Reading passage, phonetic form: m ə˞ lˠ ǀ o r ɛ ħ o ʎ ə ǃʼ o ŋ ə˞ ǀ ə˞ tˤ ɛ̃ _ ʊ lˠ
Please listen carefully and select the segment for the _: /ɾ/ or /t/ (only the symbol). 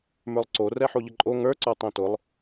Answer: t